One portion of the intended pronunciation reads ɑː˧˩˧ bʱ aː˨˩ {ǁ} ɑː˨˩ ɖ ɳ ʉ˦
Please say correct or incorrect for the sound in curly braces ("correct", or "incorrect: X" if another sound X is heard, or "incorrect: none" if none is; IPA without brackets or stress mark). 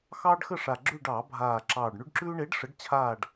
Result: correct